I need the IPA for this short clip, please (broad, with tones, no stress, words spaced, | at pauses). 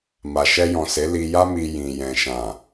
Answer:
ma˨ʃɛ˧jɔ̃˨se˨˦ li˧ja˦mi˧ jĩ˨ jɛ̃˨ʃã˨